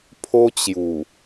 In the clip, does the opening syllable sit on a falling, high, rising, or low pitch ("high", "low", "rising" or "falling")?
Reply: high